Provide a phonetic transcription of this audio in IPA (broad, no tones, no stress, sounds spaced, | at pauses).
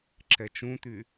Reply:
ǁ ɛ t͡ʃ ũ t̪ y